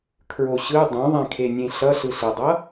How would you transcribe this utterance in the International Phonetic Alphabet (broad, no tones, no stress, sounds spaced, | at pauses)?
kʰ ɹ o ɕ ɯ dˤ õ ðˤ ɛ̃ kʰ e nʲ ẽ ɬ ʌ ɬ ɯ ɬ e dˤ ʌ